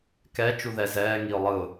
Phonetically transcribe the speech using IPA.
k ɛ t͡ʃ u ð ɛ z ɛː ŋ i ʊ̯ lˠ ɯ ʊ̯

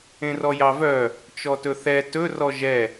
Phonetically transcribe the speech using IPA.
ẽ r ɔ j ɑ v œ | t͡ʃ ɔ t ɵ θ ɛ t ɵ r ɔ ʒ ɛ

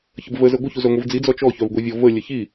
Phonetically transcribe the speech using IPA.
ç ə b v ə z ə ɡʷ ə ç u z œ ŋʷ i v d͡z i d͡z ɔ t͡ʃ ɔ ç œ v ɡʷ i vʲ ɔ v ə lʲ ə ç i

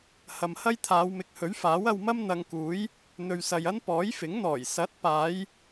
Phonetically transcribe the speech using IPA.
h ɐ˨ m h ɐ˥ j t̪ʰ aː˨˧ w m ɪ˨ k̚ h ɵ˨˥ ɥ f aː˨˥ w ɐ˧ w m ɐ˥ m n̪ ɐ˧ ŋ k uː˨˥ j | n̪ ɵ˨ ɥ s ɐ˨ j ɐ˥ n p ɔː˨˥ j f ɪ˨˥ ŋ n̪ ɔː˨˩ j s ɐ˨˥ t̚ p aː˨˧ j

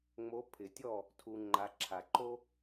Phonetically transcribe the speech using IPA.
ŋ͡m o˨˦ pʰ ɪ˨˩˦ tʲ ɔ˥˨ | tʰ u˨ ŋ͡ǃ a˨ ǁʰ a˨ ǃ o˥

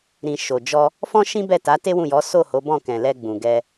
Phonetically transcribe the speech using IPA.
ɾ ĩ˨ ʃ o˨ d͡ʒ ɔ˧ | f ɔ̃˦ ʃ ĩ˦ b ɛ˦˨ t a˨˦ t e˦ w ũ˦˨ j ɔ˨˦ s o˦˨ h o˨˦ b ɔ̃˦˨ k ɛ̃˨ l ɛ˧ ɡ͡b ũ˨ ɡ ɛ˧

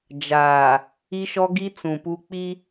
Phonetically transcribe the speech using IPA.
d͡ʒ aː˨ | i˦ ʃ ɔ˦ ɡ i˦ t͡s ũ˨ p u˦ k͡p i˦

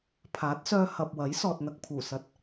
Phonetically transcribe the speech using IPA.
pʰ aː˨˥ t̚ s œː˧ h ɐ˨ p̚ w ɐ˨˥ j s ɔː˨ t̚ n̪ ɐ˨ k̚ pʰ uː˨˩ s ɐ˨˥ t̚

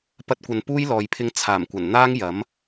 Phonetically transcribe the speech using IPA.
p ɐ˥ t̚ kʷ ɐ˧ n p uː˥ j l ɔː˨ j pʰ ɪ˧ ŋ t͡sʰ aː˨˩ m kʷ ɐ˨˩ n n̪ aː˥ ŋ j ɐ˨˥ m

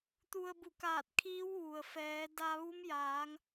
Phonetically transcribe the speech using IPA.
t̪ u˧ ə̯ b u˧˩ k aː˧˩ t̚ kʰ iː˧˥ w ʋ u˩ ə̯ f ɛː˩˧ d a˧ ʋ u˧˥ m j aː˩˧ ŋ

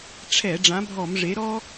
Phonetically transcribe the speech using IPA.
ʈ͡ʂʰ ɛ˧˩˧ ɖ͡ʐ ã˨˥ bʱ ɔ˧˩˧ m ʐ e˨˥ ɾ ɔ˥

